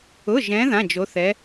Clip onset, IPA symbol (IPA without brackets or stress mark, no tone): ʊ